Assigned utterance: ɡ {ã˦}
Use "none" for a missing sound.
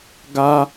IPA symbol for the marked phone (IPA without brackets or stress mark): a˦